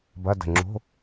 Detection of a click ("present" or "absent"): present